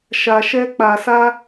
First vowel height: low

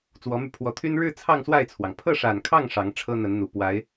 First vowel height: mid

